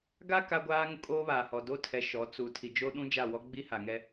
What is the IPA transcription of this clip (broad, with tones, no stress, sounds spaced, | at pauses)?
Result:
ɡ a˦ k a˦ ɡʷ aː˦ ŋ ʊ˦ kʼ oː˦ β aː˨ h ɔ˨ d o˦ tʰ ɛ˨˦ ʃ ɔ˨˦ t͡s u˨ tʰ i˨ d͡ʒ o˦ ɗ ũ˦ d͡ʒ a˦˨ w ɔ˦ ɡ͡b i˦ h a˨ ŋ ɛ˦